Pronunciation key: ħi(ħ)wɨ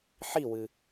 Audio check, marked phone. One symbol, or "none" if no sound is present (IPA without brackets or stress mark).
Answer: none